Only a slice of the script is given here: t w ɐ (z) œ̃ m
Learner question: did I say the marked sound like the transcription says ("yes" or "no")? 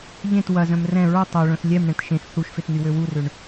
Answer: yes